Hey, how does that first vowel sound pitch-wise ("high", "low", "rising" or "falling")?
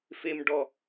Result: high